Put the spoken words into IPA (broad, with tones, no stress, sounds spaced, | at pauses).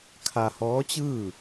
kʰ a˧ h ɔː˧˥ t͡ɕ ɯː˥˨